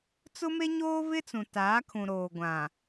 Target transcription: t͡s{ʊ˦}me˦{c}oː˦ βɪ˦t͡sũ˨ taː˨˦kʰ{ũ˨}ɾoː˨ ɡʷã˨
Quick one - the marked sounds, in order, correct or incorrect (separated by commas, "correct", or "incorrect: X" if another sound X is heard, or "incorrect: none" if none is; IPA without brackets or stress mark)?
correct, incorrect: ɲ, correct